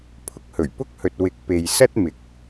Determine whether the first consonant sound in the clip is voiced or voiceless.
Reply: voiceless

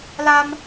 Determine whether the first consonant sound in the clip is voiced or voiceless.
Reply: voiced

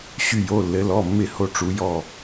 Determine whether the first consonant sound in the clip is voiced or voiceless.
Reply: voiceless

